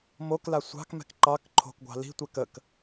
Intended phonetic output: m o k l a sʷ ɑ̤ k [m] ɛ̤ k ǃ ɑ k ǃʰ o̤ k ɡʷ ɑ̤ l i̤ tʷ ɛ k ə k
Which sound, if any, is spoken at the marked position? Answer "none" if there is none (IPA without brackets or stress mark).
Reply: m